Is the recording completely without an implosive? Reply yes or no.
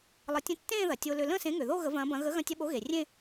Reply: no